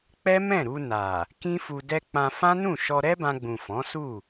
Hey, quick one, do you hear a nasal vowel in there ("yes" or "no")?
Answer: yes